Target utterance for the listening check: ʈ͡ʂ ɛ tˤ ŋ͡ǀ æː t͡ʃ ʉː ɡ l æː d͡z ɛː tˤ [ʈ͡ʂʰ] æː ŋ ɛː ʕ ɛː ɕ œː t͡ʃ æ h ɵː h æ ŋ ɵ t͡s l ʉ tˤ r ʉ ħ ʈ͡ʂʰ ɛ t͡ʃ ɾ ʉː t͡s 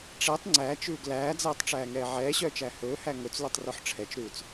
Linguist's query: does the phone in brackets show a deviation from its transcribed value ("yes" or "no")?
yes